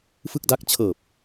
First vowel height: high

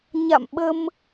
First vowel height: low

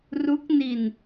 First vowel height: high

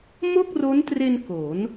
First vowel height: mid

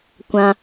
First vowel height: low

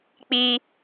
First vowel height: high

